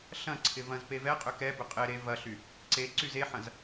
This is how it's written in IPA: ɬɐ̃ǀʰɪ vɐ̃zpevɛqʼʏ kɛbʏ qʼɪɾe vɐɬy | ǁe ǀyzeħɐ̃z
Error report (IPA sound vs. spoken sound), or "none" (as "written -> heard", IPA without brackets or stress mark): ǁ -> ǀ